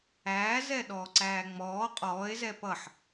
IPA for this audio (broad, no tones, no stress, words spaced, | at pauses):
æːzɛ ɗɔːǀæːŋ͡mɔː qʼɔːe̯zɛ pʌħ